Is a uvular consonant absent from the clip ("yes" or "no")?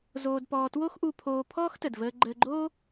yes